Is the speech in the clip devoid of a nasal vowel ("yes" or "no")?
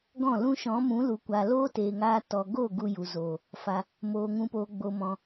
no